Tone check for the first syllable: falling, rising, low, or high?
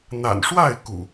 low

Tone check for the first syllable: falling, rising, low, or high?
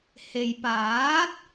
low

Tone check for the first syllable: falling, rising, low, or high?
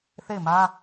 falling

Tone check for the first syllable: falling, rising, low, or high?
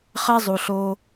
high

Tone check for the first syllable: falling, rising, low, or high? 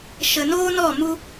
low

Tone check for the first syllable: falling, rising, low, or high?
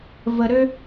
low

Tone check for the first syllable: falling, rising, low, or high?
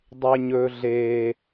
low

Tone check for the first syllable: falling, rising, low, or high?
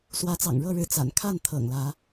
rising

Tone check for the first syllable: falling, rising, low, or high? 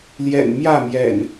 low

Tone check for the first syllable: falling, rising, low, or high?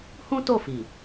high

